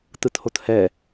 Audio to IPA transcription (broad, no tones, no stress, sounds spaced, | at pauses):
t ɯ t h o t h ɛ